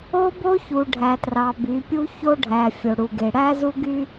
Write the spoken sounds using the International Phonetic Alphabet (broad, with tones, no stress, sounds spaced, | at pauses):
o˦ b o˦ ç u˨ ɖʱ æ˨ t r ɑ˨ b y˨˦ pʲ u˦ ç o˦ ɖʱ æ˨ fʲ o˨ ɽ u˨ ɡ e˨ ɽ æ˦ z u˦ ɡ y˦